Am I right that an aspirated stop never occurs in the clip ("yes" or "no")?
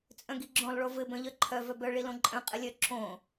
no